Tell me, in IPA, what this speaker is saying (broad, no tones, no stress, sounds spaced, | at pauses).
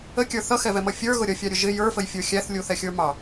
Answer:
ə kʲ ə˞ θ ʌ x ɛ v ɛ m ʌ fʲ ə˞ ɣ ʊ ɾʲ ʌ fʲ ɑ ɾʲ ʊ ʒ ɪ j ə˞ f ə j fʲ ə˞ xʲ æ θ lʲ u θ ɛ xʲ ə˞ m ɑ